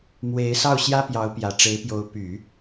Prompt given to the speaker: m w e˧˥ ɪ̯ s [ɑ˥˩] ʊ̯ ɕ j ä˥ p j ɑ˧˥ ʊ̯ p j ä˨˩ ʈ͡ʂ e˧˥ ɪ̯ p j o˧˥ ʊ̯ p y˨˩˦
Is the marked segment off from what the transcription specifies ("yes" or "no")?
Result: no